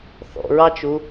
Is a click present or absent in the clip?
absent